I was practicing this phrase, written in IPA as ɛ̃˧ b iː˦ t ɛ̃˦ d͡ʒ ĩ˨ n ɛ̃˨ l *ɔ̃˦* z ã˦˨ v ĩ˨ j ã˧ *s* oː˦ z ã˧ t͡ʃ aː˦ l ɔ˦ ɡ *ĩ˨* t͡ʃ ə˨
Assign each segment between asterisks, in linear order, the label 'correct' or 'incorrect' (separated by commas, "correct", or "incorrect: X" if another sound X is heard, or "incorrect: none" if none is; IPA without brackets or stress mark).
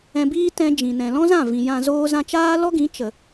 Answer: correct, incorrect: z, incorrect: ĩ˨˦